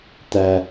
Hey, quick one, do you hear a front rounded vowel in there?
no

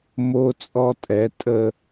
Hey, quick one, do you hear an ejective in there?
yes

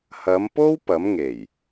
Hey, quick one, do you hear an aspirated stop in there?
no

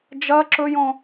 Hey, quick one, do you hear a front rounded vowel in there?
no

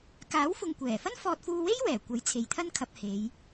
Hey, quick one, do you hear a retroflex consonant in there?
no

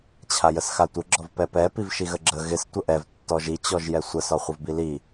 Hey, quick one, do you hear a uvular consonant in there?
yes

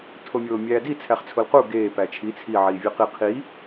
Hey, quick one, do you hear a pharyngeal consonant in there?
yes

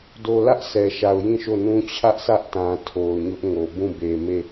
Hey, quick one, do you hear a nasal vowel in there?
yes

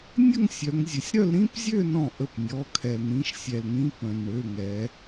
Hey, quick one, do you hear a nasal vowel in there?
yes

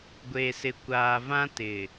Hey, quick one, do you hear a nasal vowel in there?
yes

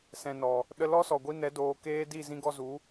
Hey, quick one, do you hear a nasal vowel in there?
yes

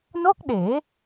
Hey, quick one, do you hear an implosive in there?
yes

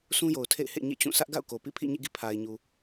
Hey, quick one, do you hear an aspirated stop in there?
yes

